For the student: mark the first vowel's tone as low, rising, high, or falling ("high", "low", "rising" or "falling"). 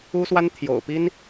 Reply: high